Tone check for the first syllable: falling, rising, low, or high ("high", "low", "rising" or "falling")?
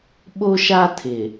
high